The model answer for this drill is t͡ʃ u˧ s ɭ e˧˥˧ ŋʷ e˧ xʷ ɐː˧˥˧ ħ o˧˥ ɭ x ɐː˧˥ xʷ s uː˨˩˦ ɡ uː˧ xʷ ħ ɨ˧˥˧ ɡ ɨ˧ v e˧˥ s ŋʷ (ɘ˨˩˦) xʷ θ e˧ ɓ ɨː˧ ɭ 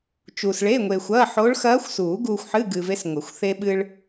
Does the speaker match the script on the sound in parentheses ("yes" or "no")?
yes